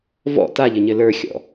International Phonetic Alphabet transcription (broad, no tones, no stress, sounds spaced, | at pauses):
v ɔ̰ t a ʎ ɘ ɲ ɘ l ə˞ xʲ ɔ̰